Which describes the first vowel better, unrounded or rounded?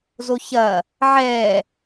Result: rounded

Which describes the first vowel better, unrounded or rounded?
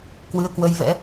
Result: unrounded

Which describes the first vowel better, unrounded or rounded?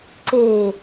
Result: unrounded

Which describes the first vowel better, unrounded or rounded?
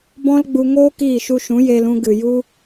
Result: rounded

